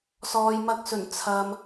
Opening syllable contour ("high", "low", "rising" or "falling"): low